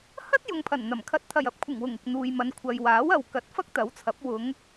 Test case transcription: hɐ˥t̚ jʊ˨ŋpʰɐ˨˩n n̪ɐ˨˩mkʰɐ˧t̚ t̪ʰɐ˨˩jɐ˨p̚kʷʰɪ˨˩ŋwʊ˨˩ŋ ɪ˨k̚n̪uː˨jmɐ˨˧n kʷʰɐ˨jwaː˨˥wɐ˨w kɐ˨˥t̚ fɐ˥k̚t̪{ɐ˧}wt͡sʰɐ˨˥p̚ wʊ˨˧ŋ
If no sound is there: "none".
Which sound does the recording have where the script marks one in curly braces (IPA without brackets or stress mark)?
ɐ˨˥